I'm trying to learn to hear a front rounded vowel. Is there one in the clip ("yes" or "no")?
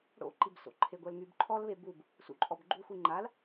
yes